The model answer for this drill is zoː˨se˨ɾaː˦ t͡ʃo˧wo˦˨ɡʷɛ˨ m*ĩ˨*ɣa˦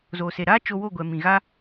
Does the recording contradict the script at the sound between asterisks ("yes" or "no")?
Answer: no